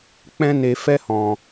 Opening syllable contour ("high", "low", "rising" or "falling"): high